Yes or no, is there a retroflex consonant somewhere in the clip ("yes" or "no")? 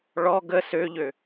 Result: yes